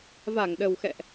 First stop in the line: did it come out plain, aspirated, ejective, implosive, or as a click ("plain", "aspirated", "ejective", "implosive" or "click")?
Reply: implosive